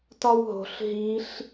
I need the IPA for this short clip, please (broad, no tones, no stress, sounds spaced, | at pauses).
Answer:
t ɒ w ɦ o̤ ɬ ɦ i ɬ